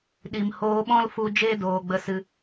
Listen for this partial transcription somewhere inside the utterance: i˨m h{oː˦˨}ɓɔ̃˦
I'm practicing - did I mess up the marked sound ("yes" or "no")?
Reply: yes